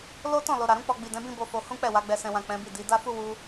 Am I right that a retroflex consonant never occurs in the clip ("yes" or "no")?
yes